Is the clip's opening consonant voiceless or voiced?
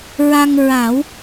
voiced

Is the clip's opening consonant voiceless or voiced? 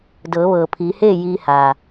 voiced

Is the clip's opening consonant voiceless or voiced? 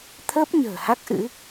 voiceless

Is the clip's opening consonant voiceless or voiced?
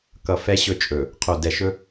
voiceless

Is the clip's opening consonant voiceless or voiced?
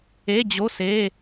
voiced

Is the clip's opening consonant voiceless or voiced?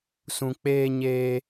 voiceless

